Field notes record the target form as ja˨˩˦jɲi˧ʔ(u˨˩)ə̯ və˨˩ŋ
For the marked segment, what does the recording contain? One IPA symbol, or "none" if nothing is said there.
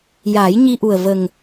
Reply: u˨˩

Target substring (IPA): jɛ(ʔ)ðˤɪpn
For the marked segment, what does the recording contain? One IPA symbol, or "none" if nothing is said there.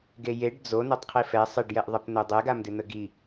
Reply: ʔ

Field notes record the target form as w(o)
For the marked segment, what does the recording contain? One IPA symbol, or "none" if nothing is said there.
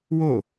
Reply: o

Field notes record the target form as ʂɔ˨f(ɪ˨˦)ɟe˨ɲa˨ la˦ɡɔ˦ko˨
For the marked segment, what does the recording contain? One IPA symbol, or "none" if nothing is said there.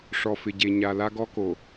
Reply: ɪ˨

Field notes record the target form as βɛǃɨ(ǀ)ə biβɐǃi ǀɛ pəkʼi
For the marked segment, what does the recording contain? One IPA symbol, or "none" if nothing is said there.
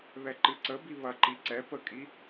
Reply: ǀ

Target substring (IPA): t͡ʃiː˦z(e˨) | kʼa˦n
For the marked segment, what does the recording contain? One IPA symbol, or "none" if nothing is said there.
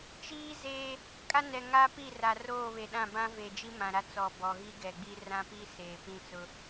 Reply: e˦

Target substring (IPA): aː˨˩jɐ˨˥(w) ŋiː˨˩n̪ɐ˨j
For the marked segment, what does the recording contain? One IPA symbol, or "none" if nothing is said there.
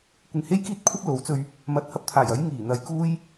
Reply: j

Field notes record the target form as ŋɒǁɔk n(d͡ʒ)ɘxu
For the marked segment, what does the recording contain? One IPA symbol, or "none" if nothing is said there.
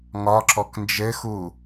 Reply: d͡ʒ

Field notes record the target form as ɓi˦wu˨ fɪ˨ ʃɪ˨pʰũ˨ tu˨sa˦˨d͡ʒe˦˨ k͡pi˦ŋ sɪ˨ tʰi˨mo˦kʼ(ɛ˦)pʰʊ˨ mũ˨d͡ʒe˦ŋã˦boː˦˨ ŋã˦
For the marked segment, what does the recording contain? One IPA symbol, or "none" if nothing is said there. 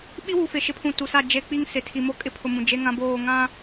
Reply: ɪ˦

